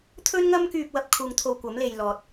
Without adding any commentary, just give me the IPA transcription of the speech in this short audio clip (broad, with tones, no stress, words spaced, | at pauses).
t̪ʰɵ˥nŋɐ˥mkyː˧p̚ wɐ˧p̚kʰuː˧ŋ t̪ʰo˧wkʷɐ˨˥m le˨j lɔː˨t̚